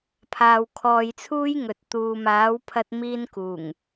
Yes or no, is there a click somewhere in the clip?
no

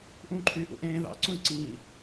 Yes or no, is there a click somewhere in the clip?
yes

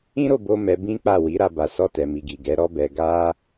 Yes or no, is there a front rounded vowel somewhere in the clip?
no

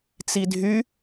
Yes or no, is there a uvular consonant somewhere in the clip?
no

